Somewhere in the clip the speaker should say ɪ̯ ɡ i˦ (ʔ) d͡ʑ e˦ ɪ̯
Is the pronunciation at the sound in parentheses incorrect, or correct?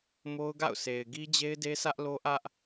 incorrect